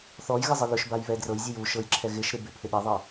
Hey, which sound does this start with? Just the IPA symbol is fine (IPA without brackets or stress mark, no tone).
θ